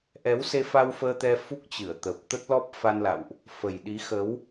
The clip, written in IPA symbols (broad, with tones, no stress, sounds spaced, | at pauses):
ʔ ɛ˨˦ w s e˧ f a˧ w f əː˧ t̪ ɛ˧ f u˦˥ k̚ t͡ɕ ɨ˧˩ ə̯ t̪ ə˨˩ p̚ t̪ ə˦˥ t̚ l ɔ˦˥ p̚ f a˧ n l a̰˧˨ w ʔ | f ə˨˩ j ɗ i˨˦ x ə˨˦ w